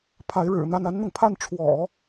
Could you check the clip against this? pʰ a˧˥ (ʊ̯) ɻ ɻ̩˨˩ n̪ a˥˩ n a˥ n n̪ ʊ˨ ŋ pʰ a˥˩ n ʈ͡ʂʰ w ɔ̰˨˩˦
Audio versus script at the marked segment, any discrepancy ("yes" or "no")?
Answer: yes